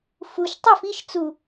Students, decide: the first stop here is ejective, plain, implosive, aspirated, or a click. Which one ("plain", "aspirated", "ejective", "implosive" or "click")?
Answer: plain